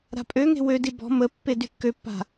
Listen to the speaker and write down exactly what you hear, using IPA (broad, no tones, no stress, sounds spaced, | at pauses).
ɾ a̤ pʼ ø ŋ e̤ w ø d i b ɔ̤ m ə pː e d y kː ø pː a̤